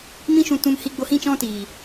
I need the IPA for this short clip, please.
m ĩ˦ ʃ ũ˧ t ũ˧ m h i˧ ɡ͡b o˧ h ĩ˦˨ t͡ʃ ɔ̃˦ t iː˨

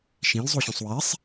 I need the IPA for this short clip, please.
ʃ ĩ l zˤ u ɕ ũ sˤ w e sˤ

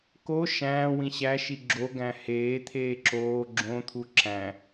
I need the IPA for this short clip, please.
k o ʃ æ̃ː w ĩ ɕ æ ʃ i ɡ͡ǁ o ɡ æ̃ h eː t̪ʰ eː ǁ oː ɡ͡ǁ õ t̪ʰ u ǁ æ̃

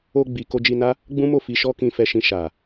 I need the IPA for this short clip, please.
o˧ ɡ͡b i˨ k o˧ d͡ʒ i˧ n a˦ | ɡ͡b ũ˦ m o˦˨ f i˧ ʃ ɔ˦ k ĩ˧ f ɛ˧ ʃ ĩ˧ ʃ a˨

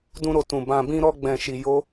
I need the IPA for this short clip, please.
d ũ˧ ɾ o˨ t ũ˨ b ã˧ b ĩ˦ ɾ ɔ˦ ɡ͡b ɛ̃˧ ʃ i˧ j o˦

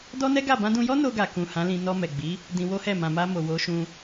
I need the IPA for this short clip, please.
d ɔ˦ n ɛ˦ ɡ a˦˨ b ã˧ d ũ˧ j ɔ˦ n o˧ ɡ a˨ k ũ˨ h ã˨˦ l ĩ˧ n ɔ˧ m ɛ˨ ɡ͡b i˨˦ | d ĩ˧ w o˦ h ɛ˦˨ m ã˨ m a˧ m o˨ w o˨˦ ʃ ũ˧

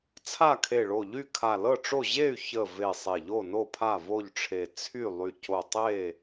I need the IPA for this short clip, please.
t͡sʰ a˥˨ kʰ e˧˩ ɭ o˧˩ ʎ y˥˨ kʰ a˧˩ l ɤ˥˨ ʈ͡ʂ o˥˨ ʑ e˥˨ y̯ ç ə˧˩ v e˧˩ sˤ e˧˩ ʎ o˥˨ n o˥˨ pʰ a˥˨ v o˥˨ ʎ ʈ͡ʂʰ e˧˩ t͡sʰ y˥˨ lˠ y˧˩ c o˧˩ tˤ e˥˨

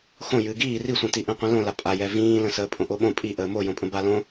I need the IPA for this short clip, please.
x õ j ɨː ɡ iː r i sʷ ĩ t i ʔ ĩ qʷ ĩ l õ l a pʼ a j ɛ v ĩː l ə̃ s əː pʼ õ ʔ o ɓ õ pʼ i ʔ əː m o j õ pʼ ə̃ b a l õ

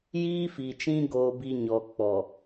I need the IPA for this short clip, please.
j iː˦ f i˨ t͡ʃ ĩ˦ ɡ oː˦ b i˦ ɲ ɔ˨ k͡p ɔ˨

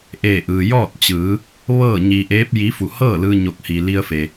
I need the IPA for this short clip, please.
ʔ eː˧˩ ʔ ɯː˩ j ɔː˥˨ t̚ t͡ɕ ɯː˩˧ | ʋ ɤː˥˨ ɲ i˧ ʔ eː˧˥ p̚ j i˧˥ f u˧˩ h ɤː˥˨ l ɯː˧ ɲ o˧˩ k̚ h i˩ l i˧ ə̯ f e˩

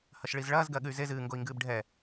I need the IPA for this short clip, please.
h ɐ ʃ ɭ i z ɭ ɐː z ɡ ɜ ɠ ɨ y̯ z e z ɨː ŋ ɡ o i̯ ŋ ɡ ɨː b ɖʱ ɛ

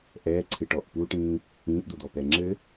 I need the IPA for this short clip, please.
ʔ ɛː ǀʰ ɨ ʈ ɔ ʔ p u ʈ ĩː | ĩː ʔ d̪ o d̪ ɔ p ɛ ŋ͡ǁ ɘ

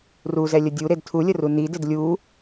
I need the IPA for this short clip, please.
r u z ɛ lʲ ə dʲ u ɾ e d tʰ u lʲ ə r u n i d ɪ d lʲ u

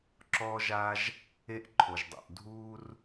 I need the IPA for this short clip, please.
ǁ ɔː˥ ʒ a˥ ʒ | e˥ ʔ ǃʰ o˩ ʒ dˤ o̰˩ ʔ dʱ uː˥ r

